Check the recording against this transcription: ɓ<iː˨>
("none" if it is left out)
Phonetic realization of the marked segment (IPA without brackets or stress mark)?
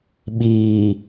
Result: iː˨